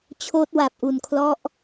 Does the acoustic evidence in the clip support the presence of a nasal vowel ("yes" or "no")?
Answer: no